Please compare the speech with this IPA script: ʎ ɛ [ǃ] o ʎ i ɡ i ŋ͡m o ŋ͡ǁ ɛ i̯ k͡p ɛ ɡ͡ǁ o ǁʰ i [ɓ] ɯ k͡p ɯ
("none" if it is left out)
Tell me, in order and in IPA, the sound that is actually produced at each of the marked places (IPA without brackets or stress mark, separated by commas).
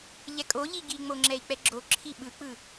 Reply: kʼ, ɓ